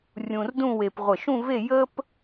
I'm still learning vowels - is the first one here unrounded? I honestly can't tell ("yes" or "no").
no